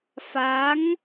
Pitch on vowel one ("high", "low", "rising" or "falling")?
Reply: rising